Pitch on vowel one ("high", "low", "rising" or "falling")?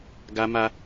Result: high